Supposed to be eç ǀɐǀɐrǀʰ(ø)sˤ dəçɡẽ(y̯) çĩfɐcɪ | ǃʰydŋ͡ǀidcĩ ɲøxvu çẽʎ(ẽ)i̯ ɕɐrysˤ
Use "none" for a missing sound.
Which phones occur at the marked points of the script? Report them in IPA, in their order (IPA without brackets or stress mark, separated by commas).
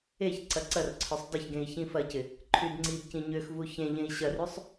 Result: œ, i̯, ẽ